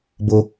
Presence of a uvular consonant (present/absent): absent